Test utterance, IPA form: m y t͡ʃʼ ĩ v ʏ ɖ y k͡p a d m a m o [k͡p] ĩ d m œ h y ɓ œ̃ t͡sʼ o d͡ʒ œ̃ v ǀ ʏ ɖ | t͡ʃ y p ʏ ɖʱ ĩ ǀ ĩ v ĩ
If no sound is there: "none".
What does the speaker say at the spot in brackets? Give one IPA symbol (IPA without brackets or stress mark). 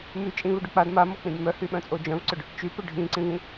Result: k͡p